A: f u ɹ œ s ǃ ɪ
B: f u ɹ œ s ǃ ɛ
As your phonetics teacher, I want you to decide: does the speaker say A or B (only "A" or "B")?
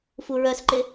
A